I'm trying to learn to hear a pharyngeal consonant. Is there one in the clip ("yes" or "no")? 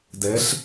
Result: no